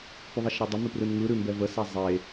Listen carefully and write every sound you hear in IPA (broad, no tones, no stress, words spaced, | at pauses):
pʉðˤeʃɾɛdˤə mʉprɯnŋɯ ɾʉmbɛvə sɛzˤe